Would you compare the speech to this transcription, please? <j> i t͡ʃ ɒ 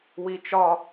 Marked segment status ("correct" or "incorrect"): incorrect